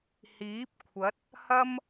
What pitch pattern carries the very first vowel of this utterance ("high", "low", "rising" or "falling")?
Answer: rising